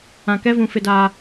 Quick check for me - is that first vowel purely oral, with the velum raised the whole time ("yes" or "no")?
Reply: no